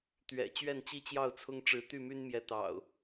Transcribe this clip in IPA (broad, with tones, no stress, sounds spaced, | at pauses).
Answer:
t̪ ɥ ɛ̰˨˩ t͡ɕ ɥ ɛ˥˨ n t͡ɕ i˦ t͡ɕ j ɑ˥˨ ʊ̯ t͡sʰ ʊ˦ ŋ ʈ͡ʂ ɻ̩˨˦ t̪ y˥˨ m y˦ n m j ɛ˨˦ t̪ ɑ̰˨˩ ʊ̯